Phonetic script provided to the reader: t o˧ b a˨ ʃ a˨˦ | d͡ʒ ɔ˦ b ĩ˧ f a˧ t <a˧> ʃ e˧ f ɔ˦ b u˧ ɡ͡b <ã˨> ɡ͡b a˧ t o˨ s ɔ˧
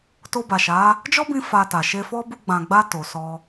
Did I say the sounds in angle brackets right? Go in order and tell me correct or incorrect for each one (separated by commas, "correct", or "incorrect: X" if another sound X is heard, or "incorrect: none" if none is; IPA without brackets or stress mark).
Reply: incorrect: a˨, correct